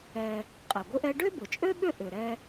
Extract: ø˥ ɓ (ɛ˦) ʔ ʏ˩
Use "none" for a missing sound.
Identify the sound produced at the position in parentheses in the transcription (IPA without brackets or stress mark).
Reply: ʏ˦